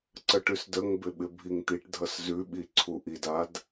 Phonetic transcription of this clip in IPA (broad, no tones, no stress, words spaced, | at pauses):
ǀəʈʉsdəŋbɪ ɓɪbʱiŋt̪iʈdʱʌs zʉɓi ǀʰuʔidad